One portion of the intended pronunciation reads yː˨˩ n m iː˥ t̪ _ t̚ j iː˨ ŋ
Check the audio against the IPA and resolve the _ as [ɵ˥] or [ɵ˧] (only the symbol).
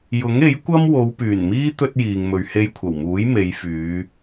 ɵ˥